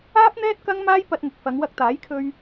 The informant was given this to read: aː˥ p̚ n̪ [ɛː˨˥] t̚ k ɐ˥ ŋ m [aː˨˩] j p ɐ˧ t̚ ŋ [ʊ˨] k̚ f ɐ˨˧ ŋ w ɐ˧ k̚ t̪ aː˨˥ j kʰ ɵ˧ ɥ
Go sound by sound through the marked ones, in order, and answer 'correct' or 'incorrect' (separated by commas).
incorrect, incorrect, correct